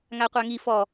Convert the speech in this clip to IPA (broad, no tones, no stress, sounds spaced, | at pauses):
ŋ a qʷ a ŋ i f ɔ